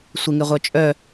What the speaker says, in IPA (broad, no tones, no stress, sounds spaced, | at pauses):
sʷ e ŋ e ʁʷ œ t͡ʃʼ œ